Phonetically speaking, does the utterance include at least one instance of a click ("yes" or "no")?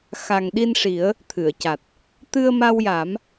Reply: no